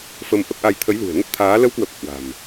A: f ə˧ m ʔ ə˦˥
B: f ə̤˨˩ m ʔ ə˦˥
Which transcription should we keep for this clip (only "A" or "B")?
A